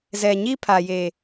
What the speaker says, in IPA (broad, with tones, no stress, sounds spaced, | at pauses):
z ɛ˨ ɲ i˦ pʰ a˨ j e˨